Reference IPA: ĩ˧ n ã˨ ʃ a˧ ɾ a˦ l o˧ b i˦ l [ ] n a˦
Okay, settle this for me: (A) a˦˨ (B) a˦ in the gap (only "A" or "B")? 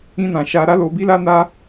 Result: B